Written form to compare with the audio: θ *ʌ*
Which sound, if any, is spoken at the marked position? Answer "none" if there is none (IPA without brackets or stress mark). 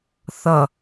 ʌ